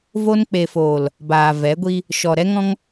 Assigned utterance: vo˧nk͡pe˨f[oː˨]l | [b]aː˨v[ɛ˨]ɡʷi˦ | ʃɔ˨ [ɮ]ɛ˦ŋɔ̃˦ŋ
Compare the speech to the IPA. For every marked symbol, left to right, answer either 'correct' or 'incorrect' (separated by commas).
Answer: correct, correct, incorrect, incorrect